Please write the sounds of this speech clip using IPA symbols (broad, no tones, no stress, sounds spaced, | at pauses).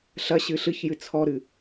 ɬ ɐ ɕ ɨ ɬ ɨ ç j ɨ t͡sʰ ɔ ɾ ɨ